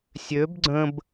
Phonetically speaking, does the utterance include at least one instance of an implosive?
no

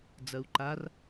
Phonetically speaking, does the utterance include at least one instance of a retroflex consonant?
no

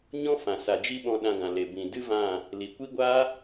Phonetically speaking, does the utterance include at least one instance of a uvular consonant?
no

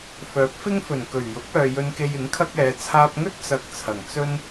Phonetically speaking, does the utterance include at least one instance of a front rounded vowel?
yes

